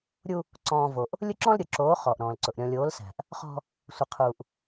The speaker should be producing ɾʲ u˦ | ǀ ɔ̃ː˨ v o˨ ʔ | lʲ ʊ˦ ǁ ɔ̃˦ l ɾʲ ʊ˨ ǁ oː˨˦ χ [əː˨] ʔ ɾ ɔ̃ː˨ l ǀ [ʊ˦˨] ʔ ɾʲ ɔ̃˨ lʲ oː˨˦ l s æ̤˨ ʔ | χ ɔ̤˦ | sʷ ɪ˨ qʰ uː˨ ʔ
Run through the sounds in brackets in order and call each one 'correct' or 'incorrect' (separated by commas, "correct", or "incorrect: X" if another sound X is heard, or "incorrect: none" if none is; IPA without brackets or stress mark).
incorrect: ɔː˨, incorrect: ʊ˨